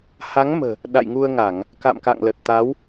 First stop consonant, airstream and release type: implosive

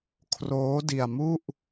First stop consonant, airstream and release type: aspirated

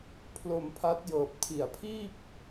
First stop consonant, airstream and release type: aspirated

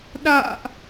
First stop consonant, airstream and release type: implosive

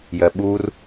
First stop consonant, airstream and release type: implosive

